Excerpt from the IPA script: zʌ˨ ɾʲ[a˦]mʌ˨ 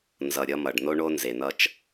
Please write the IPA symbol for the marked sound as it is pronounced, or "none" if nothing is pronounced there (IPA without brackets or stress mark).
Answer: ʌ˦